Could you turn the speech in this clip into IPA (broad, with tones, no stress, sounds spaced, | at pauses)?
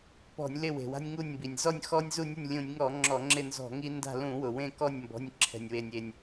p ɔ̤˧˩˧ nʲ l ɪ˦˨ w e̤˩ w a̤˦ nʲ ŋ u˦˨ nʲ m b i˩ nʲ z ɔ˦˨ nʲ x ɔ˦ nʲ z u˦˨ nʲ ʊ˦˨ nʲ lʲ ũ˧˩˧ nʲ ŋ ɔ˧˩˧ ŋ͡ǁ ɔ˧˩˧ ŋ͡ǁ ɪ˦˨ n z ɔ̤˧˩˧ ŋ i˦ n d a̤˦˨ l ũ˧˩˧ w ʊ˩ w ẽ˦˨ k ɔ˦˨ nʲ m b ɔ̤˩˧˩ nʲ ǁʰ ɛ̤˩ nʲ w e˩ nʲ e˩ nʲ